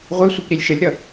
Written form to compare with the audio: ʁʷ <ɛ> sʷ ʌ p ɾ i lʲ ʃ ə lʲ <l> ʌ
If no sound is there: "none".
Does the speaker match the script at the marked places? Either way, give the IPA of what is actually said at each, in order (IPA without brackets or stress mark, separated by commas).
ɛ, ɾ